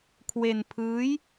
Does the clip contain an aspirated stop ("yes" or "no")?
yes